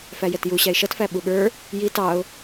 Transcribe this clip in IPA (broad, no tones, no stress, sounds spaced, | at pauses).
f æ j ɛ t j u ɕ æ ɪ̯ ʃ ʌ t f æ ɓ u ɠ ə˞ | j i t ɑ ʊ̯